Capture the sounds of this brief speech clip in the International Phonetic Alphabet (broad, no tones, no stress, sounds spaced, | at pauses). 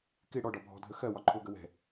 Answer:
k ɪ ɽ ɔ ɖ ɒ bʱ ɔ̤ dʱ ə x ɜ w ɒ ǃʰ ʊ ɡ ə w ɛ̤